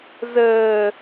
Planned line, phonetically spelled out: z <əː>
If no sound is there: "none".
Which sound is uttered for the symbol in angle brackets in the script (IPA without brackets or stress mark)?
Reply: əː